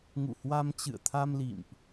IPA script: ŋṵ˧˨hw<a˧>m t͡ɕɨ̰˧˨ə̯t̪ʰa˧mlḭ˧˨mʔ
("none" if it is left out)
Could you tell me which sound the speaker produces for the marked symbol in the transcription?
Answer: a˧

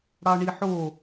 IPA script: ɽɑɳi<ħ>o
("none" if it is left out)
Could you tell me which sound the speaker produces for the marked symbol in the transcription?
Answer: ħ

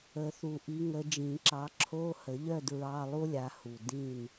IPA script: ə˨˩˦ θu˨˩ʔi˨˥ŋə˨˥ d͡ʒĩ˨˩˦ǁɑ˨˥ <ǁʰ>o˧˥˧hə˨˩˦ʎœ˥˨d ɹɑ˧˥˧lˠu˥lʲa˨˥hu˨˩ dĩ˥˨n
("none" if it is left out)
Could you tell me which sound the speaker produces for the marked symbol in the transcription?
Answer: ǁʰ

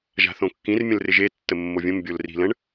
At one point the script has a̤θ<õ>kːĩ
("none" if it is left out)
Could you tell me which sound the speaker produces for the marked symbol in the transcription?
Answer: õ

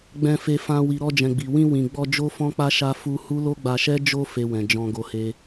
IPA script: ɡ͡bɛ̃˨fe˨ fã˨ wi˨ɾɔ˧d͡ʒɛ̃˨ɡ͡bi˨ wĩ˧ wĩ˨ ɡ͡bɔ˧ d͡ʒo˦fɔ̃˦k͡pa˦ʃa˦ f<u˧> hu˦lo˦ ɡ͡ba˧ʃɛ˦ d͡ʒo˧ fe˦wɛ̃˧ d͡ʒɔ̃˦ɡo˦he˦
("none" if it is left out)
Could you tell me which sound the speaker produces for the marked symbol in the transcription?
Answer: u˦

